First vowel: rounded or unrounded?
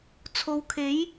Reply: rounded